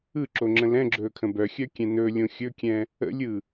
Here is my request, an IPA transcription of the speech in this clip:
ɯ ǁ o ŋ͡ǁ ə̃ l ɛ̃ ɡ͡ǁ ɵː kʰ ə̃ b œ xʲ œ kʲ ɛ̃ n ɵ lʲ õ xʲ ɵ kʲ ɛ̃ | ə̰ lʲ ɯ

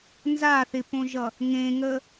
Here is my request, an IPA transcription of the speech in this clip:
n z a θ ɪ p õ ʒ ʌ | ŋ ẽ ŋ ə

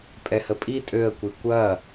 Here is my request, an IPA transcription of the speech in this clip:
pʼ ɛ h ə pʼ i tʼ ø ə̯ kʷ i kʷ ɐ

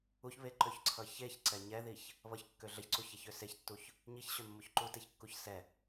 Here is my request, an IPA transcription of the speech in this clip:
u ç β e ǃ ø ç ǀʰ ʌ ç e ç ǀ ɛ ɲ ɛ ð i ç | β ʌ ç kː ø ɮ ʌ ç ǀ u ç ɛ ç ø s e ç tː u ç | ɲ i ç ɕ ø mː u ç ǃ u t e ç kː u ç s ɛ

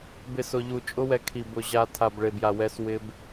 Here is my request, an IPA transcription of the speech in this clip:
b ɪ˨ s ʊ˨ ʎ u˨ t͡ʃʼ ʊ˦ w ɛ˨ kʰ i˨ b ʊ˨ ʑ a˨ tʰ a˨ b ɭ e˨ b j a˨ w ɛ˦ s w ɪ˦ b

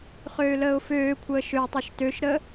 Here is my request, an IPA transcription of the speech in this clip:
χ øː l əː ʊ̯ f øː kʷʰ əː ʃ ø tˤ y ʃ t ø ʃ ɾ ə

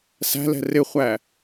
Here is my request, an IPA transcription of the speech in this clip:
s æ̤ l ɛ̤ r ɪ χʷ æ

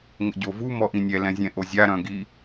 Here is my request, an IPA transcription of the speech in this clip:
ŋ ə̰ ɟ o v u m ɔ ʔ ĩ nʲ ɛ l ɛ̃ zʲ ɛ̃ ʔ o zʲ a ɾ œ̃ ɡ i

